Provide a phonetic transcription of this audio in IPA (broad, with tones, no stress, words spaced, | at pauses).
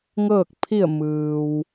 ŋɤː˥˨k̚ pʰi˥˨ə̯mɯː˩w